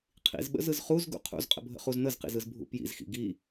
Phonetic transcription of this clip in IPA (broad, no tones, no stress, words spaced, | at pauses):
qʰḭzɓə̰zɯz χuzɡṵ qʰṵzqʼə̰bʱə̰χuz n̪əzqḭzɯzbʱṵ pjḭzxḭ ɡi